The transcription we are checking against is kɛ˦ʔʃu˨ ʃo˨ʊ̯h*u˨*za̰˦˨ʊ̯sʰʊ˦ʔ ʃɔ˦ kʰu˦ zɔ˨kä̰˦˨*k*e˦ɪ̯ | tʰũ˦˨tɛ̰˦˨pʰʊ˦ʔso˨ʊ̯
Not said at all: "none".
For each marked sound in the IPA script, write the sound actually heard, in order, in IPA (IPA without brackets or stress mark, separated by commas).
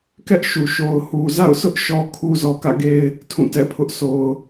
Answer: u˨, ɡ